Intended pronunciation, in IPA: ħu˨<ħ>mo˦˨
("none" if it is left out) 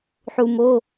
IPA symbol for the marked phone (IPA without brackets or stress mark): none